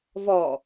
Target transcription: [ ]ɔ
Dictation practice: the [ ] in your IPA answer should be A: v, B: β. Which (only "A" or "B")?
A